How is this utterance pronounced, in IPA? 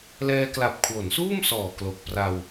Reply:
l ɛː˧ k l a˨˩ p̚ kʰ w o˩˦ n s uː˥˩ m s ɔː˨˩ k l o˨˩ k̚ p r a˧ w

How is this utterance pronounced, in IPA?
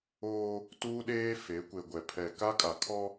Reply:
oː˦ | t uː˦ ɗ eː˦ f e˨˦ kʷ e˨ ɡʷ ɛ˨ pʰ ɛ˨ k a˦ kʼ a˨ kʰ ɔ˦

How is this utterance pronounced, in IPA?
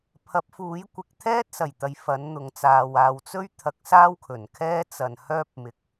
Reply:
pʰ ɐ˨˥ p̚ f uː˨˥ j kʷ ɪ˨ k̚ t̪ʰ ɛː˥ t̚ s ɐ˨˩ j t̪ ɐ˧ j f ɐ˨˥ n n̪ ʊ˨ ŋ t͡s aː˨ w aː˨ w t͡s ɵ˥ ɥ t̪ʰ ɐ˨˥ k̚ s aː˥ w kʰ ɵ˨˩ n kʰ ɛː˥ t͡s ɐ˨ n h œː˥ p̚ m ɪ˨˥ k̚

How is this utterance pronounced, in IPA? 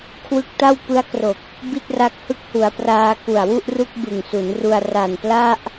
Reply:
kʰ w ɯ˦˥ k̚ t a˥˩ w p ɯ˦˥ a̯ k r o˨˩ k̚ | b i˥˩ t̚ r a˦˥ k̚ h ɯ˦˥ k̚ h u˩˦ a̯ p r aː˧ k u˨˩ a̯ w u˥˩ ʔ r u˥˩ k̚ b ɯ˨˩ ŋ s u˩˦ n r u˧ a̯ r a˨˩ n p l a˥˩ ʔ

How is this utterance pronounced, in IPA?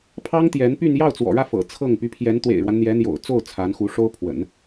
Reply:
pʰ ɑ˥ ŋ t̪ j ɛ˧˥ n p y˥˧ n j ɑ˥˩ ʊ̯ t͡s w ɔ̰˨˩ ɻ ä˥˩ f ɤ̰˨˩ t͡sʰ ɤ˥˩ ŋ p y˧˥ pʰ j ɛ˧˥ n t̪ w ḛ˨˩ ɪ̯ ɻ w a˦ n n̪ j ɛ˧˥ n̪ j o̰˨˩ ʊ̯ t͡s o˥˩ ʊ̯ t͡sʰ a˧˥ n x u˧˥ ʂ o˥ ʊ̯ pʰ w ə̰˨˩˦ n

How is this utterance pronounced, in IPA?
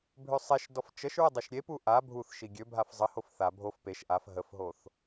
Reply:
bʱ ø sˤ e ʃ d ɔ f t͡ʃ ə ʃ ɹ ə dˤ ø ʃ ɾʲ e p u ʔ a bʱ u θ ʃ i ɡʲ ø bʱ a f zˤ ə h o f θ a bʱ o f p e ʃ ʔ a f ɦ ə f ɦ o θ

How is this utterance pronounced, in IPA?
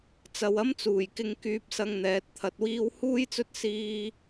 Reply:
t͡s ɐ˨ w ɐ˥ m t͡s uː˨˩ j k ɪ˧ ŋ k yː˧ p̚ s ɐ˧ ŋ n̪ ɛː˨˥ t̚ t̪ʰ ɐ˧ t̚ w iː˥ w h uː˥ j t͡s ɵ˥ t̚ s iː˥

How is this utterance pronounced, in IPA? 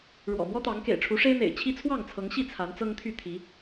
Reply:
ɻ w ɔ̰˨˩ m w ɔ˦ t̪ ɑ˨˦ ŋ k ḛ˨˩ ɪ̯ ʈ͡ʂʰ u˨˦ ʂ e˦ ɪ̯ n̪ ḛ˨˩ ɪ̯ t͡ɕʰ i˦ t͡sʰ w ɑ˥˨ ŋ t͡sʰ ɤ˨˦ ŋ ɕ i˥˨ t͡sʰ a˨˦ n t͡s ɤ˦ ŋ t̪ʰ y˥˨ t̪ʰ i˨˦

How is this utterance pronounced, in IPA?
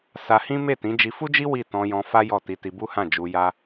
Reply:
s a˧ h ĩ˦ m e˦˨ t ĩ˨˦ d͡ʒ i˧ f u˦ d͡ʒ i˦ w i˦˨ t ɔ̃˧ j ɔ̃˧ f a˦ j ɔ˦˨ t i˧ t i˧ b u˦ h ã˦˨ d͡ʒ u˧ j a˦

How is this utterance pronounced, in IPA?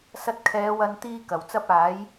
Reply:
s ɐ˧ t̚ kʰ ɛː˨˧ w ɐ˧ n t̪ iː˧ k ɐ˨˩ w t͡s ɐ˨ p̚ aː˨˧ j

